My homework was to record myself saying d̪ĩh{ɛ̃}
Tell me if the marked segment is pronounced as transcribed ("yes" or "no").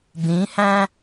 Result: no